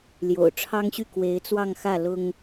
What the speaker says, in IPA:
l j o̰˨˩ ʊ̯ ʈ͡ʂʰ ɑ˥ ŋ ɕ y˥˩ k w e˧˥ ɪ̯ t͡s w ɑ˥˧ ŋ x ä˥˩ l ʊ˥ ŋ

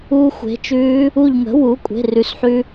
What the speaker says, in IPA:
uː˧ xʷ e̤˩˥ t͡ʃ ʉː˧˥ | u˧˩ ʎ ŋ ə̤˩˥ w u˩˥ kʷʼ e̤˩˧˩ r ʉ˩˥ s ħ ʉ˧

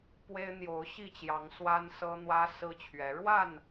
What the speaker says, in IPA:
p w e˦ ɪ̯ n̪ j o˨˦ ʊ̯ ɕ i˥˨ t͡ɕ j ɑ˨˦ ŋ s w a˦ n s ɤ˦ n̪ w ä˦ s ɹ̩˦ t͡ɕʰ ɥ ɛ˨˦ ɻ w a˥˨ n

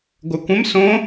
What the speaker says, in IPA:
ɡʷ œ kʷ ə̃ m s õ

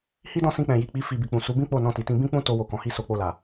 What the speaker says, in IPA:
h i˦ d ɔ̃˦˨ s ĩ˧ k͡p ɛ̃˨ j i˨ k͡p i˨˦ f i˧ b i˨ k͡p ũ˨ s u˨˦ b ĩ˦ k͡p o˦˨ n ɔ̃˧ t i˨ t ĩ˧ b ĩ˦ k͡p ũ˦ t o˧ w o˨ k ɔ̃˨ h i˧ s o˧ k͡p o˧ l a˨

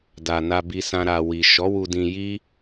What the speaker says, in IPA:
d a˨ n a˧ b i˧ s ã˧ ɾ a˨ w i˨ ʃ ɔ˨˦ w u˧ d ĩ˧ j i˦

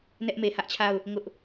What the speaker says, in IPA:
n ɛ˦ ʔ m e˨ h ä˦ ʔ t͡ɕʰ a˦˨ ʊ̯ | ŋ ʊ˦ ʔ

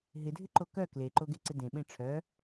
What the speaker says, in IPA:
ɦ ɪ dʱ ɪ ǃ o k œ k l e ǃ o ɡ e ǀ ɪ d ẽ ɓ ẽ ʈ͡ʂʰ œ

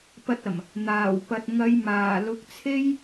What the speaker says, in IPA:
p ɐ˧ t̚ ɐ˨˩ m | n̪ aː˨˩ w p ɐ˨ t̚ ŋ ɐ˨˧ j m aː˨˩ l ʊ˨˥ k̚ t͡sʰ e˥ j

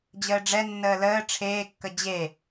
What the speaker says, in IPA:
d͡ʑ əː ɖ͡ʐ ɛ nː əː l əː ʈ͡ʂʰ eː kː ə d͡ʑ e

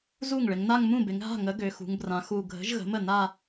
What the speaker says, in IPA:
z u˥˩ ŋ ɭ ɪ˩˧ ŋ n a˥˧ ŋ m ũ˥˩ b ɪ˩˧ ŋ ɦ a̤˥˩ ŋ ə˨˥ ɡ ø˩˧ x ṳ˩˧ ŋ b r ã˩˧ x u˨˩ ɡʱ ə̤˨˥ ʒ ɣ ə̤˨˥ m ə˥˩ n a˥˧

